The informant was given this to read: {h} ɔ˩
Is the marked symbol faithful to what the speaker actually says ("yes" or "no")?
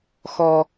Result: no